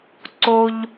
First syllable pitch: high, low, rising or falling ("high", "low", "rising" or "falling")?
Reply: low